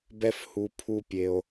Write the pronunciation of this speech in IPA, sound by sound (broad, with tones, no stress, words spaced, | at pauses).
bɛ˦f hu˧ pʰu˧ pʲe˧o̯